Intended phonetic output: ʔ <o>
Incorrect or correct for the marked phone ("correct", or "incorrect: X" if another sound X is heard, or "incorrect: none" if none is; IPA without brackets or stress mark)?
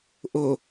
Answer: correct